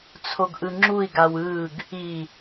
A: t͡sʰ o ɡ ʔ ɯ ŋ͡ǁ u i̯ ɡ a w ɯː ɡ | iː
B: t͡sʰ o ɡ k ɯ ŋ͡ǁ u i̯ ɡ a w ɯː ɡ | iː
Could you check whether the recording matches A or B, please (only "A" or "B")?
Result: A